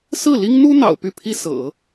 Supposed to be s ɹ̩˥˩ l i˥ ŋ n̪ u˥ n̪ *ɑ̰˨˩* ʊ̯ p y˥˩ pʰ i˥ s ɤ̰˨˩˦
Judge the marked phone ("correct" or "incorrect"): correct